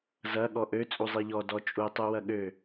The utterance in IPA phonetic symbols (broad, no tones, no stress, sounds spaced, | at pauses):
z ɐ ɠ ɔ ʔ ø t͡sʼ u zˤ i ʎ ɔ d ɔ t͡ʃʼ u tˤ u w ɐ ɠ ø